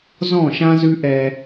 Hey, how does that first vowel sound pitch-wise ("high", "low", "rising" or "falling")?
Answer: falling